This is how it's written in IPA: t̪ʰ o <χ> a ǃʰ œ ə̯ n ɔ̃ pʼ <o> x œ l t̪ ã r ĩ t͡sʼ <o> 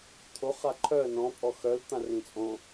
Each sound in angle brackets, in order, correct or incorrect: correct, incorrect: ɔ, incorrect: õ

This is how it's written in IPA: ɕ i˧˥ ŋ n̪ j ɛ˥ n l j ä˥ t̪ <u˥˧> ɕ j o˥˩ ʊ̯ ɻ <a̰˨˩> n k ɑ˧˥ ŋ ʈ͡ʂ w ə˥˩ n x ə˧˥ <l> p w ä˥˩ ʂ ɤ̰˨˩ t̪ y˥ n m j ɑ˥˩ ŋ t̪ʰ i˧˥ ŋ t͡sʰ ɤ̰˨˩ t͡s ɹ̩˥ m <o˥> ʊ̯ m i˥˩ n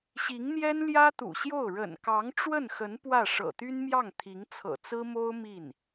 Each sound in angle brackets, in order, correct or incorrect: incorrect: ṵ˨˩, incorrect: ə̰˨˩, incorrect: n, correct

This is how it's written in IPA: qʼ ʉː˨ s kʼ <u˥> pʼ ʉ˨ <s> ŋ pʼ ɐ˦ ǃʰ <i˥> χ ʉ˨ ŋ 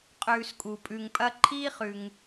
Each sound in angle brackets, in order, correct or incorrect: incorrect: u˩, incorrect: none, incorrect: iː˥

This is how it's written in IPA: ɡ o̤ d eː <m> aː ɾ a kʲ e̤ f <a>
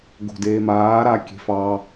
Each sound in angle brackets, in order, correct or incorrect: correct, incorrect: ɑ

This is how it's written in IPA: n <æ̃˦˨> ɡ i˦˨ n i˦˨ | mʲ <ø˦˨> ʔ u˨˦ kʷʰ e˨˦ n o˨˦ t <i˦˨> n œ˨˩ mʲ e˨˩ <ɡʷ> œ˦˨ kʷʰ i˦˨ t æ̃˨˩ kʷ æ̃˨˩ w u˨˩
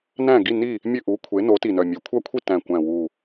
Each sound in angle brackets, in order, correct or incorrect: correct, correct, incorrect: i˨˩, incorrect: kʷʰ

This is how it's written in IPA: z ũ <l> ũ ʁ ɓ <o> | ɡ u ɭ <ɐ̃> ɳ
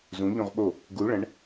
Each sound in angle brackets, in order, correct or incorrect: incorrect: ʎ, correct, correct

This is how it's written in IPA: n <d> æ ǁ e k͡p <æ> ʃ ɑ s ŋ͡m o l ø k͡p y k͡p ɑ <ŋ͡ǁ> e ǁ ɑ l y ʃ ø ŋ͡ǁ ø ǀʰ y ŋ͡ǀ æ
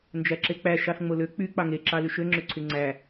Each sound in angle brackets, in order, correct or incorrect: incorrect: d͡ʒ, correct, incorrect: ŋ

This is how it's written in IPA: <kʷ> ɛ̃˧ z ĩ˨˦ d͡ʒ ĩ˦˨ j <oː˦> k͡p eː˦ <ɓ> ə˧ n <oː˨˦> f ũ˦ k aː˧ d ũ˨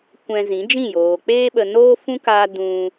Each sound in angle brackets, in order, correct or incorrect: correct, incorrect: oː˨, correct, incorrect: oː˦

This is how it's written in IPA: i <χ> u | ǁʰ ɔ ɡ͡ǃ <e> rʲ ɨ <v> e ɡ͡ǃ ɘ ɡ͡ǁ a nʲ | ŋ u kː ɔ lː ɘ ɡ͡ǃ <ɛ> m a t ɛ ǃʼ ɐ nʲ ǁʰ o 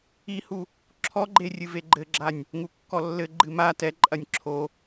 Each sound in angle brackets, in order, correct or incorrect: incorrect: h, correct, correct, incorrect: ɨ

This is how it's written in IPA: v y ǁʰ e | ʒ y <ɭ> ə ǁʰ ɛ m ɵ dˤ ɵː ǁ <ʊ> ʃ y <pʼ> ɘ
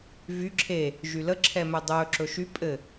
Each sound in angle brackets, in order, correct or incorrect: incorrect: l, incorrect: ɵ, correct

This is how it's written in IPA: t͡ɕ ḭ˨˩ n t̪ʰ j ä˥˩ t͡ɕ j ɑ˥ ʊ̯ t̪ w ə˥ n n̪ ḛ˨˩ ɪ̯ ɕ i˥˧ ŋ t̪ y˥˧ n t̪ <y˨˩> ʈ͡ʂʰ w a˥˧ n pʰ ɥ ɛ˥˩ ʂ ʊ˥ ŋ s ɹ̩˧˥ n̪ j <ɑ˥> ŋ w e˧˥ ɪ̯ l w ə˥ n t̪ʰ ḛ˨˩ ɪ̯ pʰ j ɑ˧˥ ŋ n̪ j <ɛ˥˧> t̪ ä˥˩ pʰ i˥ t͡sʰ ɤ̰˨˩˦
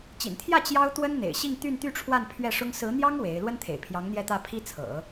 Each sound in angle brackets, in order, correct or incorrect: incorrect: y˥˧, correct, correct

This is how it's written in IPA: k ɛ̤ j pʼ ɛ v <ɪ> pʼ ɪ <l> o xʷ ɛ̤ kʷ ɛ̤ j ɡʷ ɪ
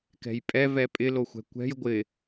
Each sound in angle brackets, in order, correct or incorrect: incorrect: ɛ, correct

